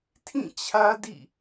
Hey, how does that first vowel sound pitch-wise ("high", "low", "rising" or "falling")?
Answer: falling